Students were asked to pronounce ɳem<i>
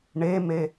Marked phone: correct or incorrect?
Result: incorrect